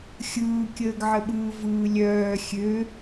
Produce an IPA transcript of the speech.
xʲ ɯː kʲ əː ɡ ʕ ə ɓ ɯː v ɯː lʲ œː xʲ ø

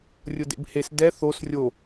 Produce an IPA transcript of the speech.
rʲ ʊ d ḛ b h e s d ɛ θ o s rʲ o

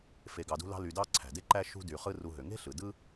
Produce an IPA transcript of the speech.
f e˨ ɡ ɑ˨ d ṳ˦ l ɑ̤˦ l y˨ d ɑ˦ ǀʰ æ̤˩ d e˦ ǃ æ˦ ʃ ṳ˦ d y˨ χ ɯ˦ r u˨ ɦ ø˩ ŋ e̤˥ ɬ ɯ˩ d ɯ˥

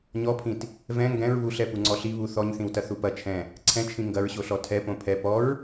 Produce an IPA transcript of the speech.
ɲ ɔ pʰ ĩ t | v ɛ̃ ŋ ɡ ɛ̃ ɹ β u ɬ ɛ p u ŋ͡ǀ ɔ ɬ i β u θ ɔ ɲ θ ĩ w t ɐ θ u p ɐ t͡ʃʰ ɛ̃ | ǀʰ ɛ̃ t͡ʃʰ ĩ ŋ ɡ ɐ ɹ ɕ o ɬ ɔ tʰ ɛ p õ pʰ ɛ p ɔ ɹ

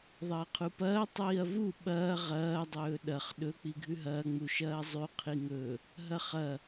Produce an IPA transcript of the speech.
ðˤ ɐː qʰ u p ɐː tˤ iː ɐ̯ v u ɓ ɐː ʁ ɐː dˤ ɵː ɗ ɐ χ ɗ ɵ k͡p i ɡʱ ʉ ɦ ɐː ŋ͡m u ʃ ɐː zˤ ʉ qʰ i ŋ ɵ | ɦ ɐ χ ɐ

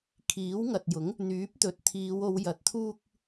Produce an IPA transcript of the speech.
kʰ iː˨˥ w ŋ ɐ˨ t̚ j ʊ˨˥ ŋ | n̪ yː˨˥ p̚ t̪ ɵ˨ t̚ t̪ʰ iː˨˧ w o˨˧ w j ɐ˨ t̚ t̪ʰ uː˧ k̚

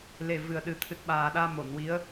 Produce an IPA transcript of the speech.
l e˨˩ v ɨ˨˩ ə̯ ɗ ɨ˨˩ t̪ʰ ɨ˨˩ t̚ ɓ aː˨˩ ɗ aː˧ m o˨˩˨ n w i˧˥ ə̯

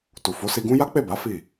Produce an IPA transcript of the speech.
t u˨ f o˨˦ s i˧ ɡ ũ˦ j a˦ k͡p e˦˨ b a˨˦ f i˦˨

